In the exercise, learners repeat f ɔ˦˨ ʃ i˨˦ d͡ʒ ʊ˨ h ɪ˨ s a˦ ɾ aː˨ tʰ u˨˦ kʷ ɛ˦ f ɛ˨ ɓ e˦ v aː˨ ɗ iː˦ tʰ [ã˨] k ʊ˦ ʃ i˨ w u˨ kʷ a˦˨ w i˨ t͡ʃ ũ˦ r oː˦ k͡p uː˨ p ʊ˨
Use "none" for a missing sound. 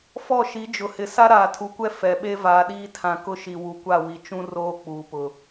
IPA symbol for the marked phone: ã˨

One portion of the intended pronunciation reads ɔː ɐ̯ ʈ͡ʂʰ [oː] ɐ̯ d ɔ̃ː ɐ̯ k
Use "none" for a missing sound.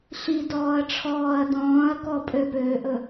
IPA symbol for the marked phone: ɔː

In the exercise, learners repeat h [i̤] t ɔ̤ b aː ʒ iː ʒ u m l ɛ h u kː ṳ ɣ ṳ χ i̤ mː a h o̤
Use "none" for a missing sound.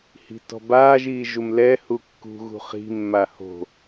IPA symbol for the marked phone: i̤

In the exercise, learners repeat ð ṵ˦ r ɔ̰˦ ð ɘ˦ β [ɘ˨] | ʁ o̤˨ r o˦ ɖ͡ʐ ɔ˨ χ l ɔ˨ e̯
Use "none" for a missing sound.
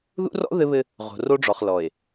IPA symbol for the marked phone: ɘ˦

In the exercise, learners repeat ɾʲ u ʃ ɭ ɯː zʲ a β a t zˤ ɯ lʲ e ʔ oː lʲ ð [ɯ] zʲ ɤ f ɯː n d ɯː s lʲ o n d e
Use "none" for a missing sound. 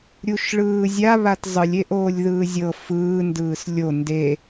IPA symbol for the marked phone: ɯː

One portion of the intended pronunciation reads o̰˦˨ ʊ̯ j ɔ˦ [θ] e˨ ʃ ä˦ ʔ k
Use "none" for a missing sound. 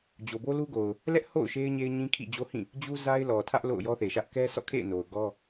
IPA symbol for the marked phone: θ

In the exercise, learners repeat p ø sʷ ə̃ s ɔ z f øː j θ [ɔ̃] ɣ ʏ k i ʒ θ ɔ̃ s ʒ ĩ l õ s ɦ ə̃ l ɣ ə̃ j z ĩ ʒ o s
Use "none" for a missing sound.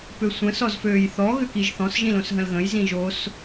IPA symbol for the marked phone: ɔ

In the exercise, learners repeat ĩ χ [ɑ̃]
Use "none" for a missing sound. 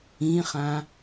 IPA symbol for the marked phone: ã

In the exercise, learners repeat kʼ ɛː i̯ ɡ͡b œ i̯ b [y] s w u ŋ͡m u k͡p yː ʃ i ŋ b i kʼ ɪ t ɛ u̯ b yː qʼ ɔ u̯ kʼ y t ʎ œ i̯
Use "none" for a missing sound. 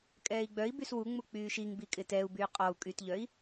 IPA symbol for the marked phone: y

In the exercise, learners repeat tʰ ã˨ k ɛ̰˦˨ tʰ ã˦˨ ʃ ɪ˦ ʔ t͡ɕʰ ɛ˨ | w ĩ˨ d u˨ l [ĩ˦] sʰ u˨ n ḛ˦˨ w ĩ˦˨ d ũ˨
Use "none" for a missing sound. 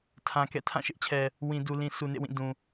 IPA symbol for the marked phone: ĩ˨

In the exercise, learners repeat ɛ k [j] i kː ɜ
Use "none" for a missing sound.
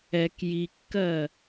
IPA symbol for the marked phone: j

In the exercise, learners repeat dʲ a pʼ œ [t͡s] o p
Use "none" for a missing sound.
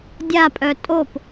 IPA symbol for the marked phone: tʼ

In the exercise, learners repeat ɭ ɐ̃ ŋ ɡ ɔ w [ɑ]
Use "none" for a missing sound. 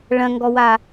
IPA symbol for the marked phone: a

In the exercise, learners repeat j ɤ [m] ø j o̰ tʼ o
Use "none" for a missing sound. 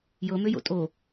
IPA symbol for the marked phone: m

